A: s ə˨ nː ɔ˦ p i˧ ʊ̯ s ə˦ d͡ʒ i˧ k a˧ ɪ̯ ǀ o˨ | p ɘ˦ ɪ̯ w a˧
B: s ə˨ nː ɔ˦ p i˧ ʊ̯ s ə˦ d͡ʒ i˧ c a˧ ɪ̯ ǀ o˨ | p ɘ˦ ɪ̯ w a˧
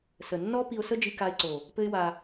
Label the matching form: A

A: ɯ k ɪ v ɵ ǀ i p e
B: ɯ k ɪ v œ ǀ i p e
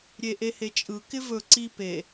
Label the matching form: A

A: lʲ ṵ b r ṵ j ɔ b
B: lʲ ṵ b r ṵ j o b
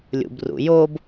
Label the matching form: B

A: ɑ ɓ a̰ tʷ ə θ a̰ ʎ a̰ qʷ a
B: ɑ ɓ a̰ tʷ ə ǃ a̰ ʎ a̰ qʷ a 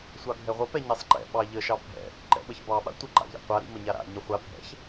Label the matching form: B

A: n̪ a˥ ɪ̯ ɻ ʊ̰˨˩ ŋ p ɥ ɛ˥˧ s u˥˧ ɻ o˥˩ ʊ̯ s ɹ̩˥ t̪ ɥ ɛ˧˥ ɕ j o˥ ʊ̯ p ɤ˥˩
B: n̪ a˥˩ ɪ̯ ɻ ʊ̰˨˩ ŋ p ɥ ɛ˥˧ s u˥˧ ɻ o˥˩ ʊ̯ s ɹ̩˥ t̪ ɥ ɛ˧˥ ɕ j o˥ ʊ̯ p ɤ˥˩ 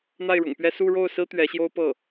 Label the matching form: B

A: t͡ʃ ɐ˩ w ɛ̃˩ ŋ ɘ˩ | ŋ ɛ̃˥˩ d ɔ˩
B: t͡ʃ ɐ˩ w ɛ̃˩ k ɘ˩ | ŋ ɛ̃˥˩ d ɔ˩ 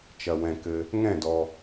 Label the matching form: B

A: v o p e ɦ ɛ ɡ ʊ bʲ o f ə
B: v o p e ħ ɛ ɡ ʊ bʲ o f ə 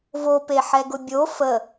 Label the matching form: B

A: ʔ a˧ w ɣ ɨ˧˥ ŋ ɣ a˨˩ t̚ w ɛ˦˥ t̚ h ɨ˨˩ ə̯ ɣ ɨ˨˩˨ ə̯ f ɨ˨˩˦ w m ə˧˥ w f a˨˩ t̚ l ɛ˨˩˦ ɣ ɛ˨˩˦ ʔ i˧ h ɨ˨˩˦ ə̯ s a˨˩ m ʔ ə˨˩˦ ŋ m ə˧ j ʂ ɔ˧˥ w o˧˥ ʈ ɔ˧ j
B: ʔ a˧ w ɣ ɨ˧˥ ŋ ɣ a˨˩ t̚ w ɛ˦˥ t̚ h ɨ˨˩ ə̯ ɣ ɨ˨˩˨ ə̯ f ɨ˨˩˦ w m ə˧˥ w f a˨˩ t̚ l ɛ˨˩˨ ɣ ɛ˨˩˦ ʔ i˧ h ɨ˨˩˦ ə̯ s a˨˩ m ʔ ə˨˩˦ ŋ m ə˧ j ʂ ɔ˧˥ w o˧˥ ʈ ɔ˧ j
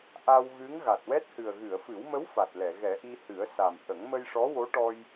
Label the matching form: B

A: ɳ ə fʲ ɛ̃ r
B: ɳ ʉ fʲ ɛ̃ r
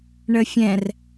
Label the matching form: A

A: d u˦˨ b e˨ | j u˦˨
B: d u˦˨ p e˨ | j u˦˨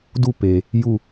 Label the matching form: B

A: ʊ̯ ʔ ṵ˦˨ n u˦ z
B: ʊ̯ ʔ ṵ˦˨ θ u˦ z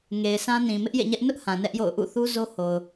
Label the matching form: B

